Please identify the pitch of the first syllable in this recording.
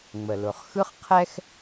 low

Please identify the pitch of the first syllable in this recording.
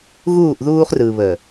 falling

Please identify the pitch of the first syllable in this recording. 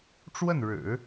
falling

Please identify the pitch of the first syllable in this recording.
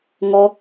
high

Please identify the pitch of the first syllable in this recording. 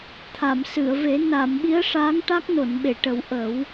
low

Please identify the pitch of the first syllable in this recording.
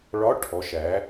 rising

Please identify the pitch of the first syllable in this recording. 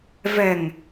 low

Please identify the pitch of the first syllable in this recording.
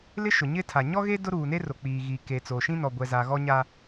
high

